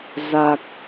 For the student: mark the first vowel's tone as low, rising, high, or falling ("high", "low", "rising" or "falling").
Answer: low